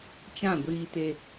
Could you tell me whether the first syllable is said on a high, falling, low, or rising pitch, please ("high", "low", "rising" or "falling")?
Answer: falling